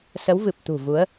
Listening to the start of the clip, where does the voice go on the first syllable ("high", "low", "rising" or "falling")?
rising